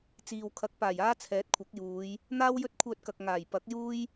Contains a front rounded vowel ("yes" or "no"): yes